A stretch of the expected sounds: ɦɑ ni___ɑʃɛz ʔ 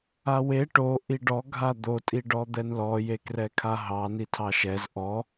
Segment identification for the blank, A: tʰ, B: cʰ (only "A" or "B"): A